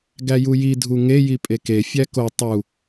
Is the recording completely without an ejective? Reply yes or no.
no